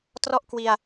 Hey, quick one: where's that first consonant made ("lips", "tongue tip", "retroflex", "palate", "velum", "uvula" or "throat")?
tongue tip